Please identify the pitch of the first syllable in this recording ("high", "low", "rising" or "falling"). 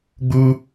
high